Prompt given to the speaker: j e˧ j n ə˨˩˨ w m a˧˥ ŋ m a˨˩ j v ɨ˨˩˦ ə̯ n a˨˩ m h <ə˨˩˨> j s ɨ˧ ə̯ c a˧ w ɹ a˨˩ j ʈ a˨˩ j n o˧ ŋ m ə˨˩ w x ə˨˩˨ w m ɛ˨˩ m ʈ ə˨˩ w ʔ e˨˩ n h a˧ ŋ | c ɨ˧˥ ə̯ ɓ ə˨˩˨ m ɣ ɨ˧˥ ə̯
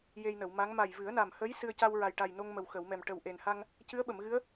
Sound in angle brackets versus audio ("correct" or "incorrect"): incorrect